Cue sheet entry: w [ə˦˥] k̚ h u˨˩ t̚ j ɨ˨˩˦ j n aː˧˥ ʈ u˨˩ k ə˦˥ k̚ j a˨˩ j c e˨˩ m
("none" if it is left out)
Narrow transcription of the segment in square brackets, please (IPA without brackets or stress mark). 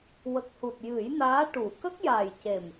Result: ə˨˩